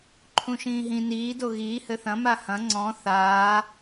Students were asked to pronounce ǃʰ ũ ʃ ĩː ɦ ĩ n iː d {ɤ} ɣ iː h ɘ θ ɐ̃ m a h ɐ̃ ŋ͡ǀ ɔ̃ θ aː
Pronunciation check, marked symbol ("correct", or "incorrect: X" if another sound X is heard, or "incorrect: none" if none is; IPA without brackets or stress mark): incorrect: o